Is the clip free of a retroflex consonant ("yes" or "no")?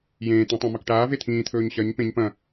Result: no